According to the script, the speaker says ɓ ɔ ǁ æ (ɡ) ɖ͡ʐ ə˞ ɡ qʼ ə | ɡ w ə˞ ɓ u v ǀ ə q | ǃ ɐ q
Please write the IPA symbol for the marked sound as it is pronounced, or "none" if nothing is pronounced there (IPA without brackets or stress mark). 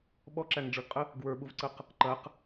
ŋ